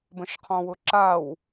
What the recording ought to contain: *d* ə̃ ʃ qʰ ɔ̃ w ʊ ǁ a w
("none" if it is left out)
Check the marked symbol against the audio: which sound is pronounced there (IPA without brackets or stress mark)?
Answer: b